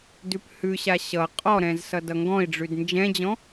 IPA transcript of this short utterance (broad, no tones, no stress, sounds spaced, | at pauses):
d ʉ p h ʉ ɕ a ɕ ʌ qʼ ɔ ɾ ɛ̃ z s ʌ d ʌ ŋ ɡ ɔ̃ i̯ ɖ͡ʐ ʉ d n d͡ʒ ɛ̃ d͡ʑ ɔ̃